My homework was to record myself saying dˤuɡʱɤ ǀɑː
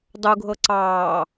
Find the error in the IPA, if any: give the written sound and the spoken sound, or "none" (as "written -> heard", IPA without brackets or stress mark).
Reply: none